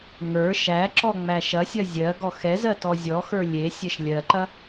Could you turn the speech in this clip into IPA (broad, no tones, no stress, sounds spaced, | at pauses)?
ŋ ə˞ ʃ æ ǁ ɔ ŋ͡m æ ʃ ɐ sʲ ɐ zʲ ɜ ɡ ɔ x ɛ z ɜ t ɔ zʲ ɔ x ə˞ lʲ e sʲ ɛ ʃ lʲ ɜ ǃ ɐ